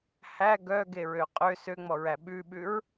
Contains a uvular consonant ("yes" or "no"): yes